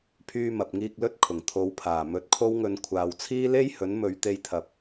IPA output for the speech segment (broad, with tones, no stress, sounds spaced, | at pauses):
pʰ yː˧ m ɐ˨ p̚ ŋ iː˧ k̚ l ɵ˧ t̚ kʰ ʊ˨˩ ŋ t̪ʰ o˨˧ w pʰ aː˨˩ m ɵ˨˥ t̚ kʰ o˥ w ŋ ɵ˧ n kʷʰ aː˨ w t͡sʰ iː˥ l e˥ j h ɵ˨˥ n m ɵ˨˧ ɥ t̪ e˧ j t̪ʰ ɐ˨ p̚